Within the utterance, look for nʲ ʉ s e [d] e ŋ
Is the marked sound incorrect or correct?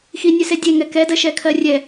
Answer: incorrect